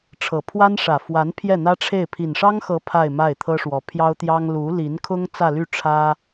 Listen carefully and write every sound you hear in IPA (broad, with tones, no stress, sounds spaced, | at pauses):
ʈ͡ʂʰ ɤ˨˩ pʰ w a˥ n ʂ ä˨˩ f w a˧˥ n pʰ j ɛ˥˩ n̪ ä˥ ʈ͡ʂʰ e˥˩ ɪ̯ pʰ i˨˩ n ʂ ɑ˥ ŋ x ɤ˧˥ pʰ a˥˧ ɪ̯ m a˥˩ ɪ̯ t̪ʰ ɤ˥ ʂ w ɔ˧˥ pʰ j ɑ˥ ʊ̯ t̪ j ɑ˥ ŋ l u˧˥ l i˧˥ n kʰ ʊ˥ ŋ t͡s ä˥˧ l y˥˩ ʈ͡ʂʰ ä˥